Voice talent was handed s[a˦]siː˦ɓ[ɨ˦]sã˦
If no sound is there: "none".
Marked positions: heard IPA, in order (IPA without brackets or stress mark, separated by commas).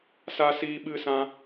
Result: a˦, ɨ˦